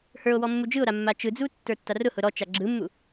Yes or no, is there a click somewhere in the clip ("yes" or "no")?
yes